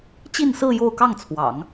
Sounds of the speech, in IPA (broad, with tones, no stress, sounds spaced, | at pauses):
t͡ɕ i˥˧ n s ɹ̩˥˧ j o˥˧ ʊ̯ k ɑ˥˩ ŋ t͡sʰ w ɑ̰˨˩˦ ŋ